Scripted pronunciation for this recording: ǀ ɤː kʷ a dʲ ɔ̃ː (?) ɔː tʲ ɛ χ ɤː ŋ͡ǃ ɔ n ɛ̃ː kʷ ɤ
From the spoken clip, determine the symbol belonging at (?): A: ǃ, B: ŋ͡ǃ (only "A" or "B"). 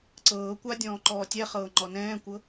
A